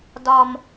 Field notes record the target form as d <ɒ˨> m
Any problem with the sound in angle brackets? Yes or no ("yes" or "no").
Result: no